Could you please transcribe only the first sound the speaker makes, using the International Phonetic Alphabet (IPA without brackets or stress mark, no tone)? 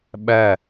ɓ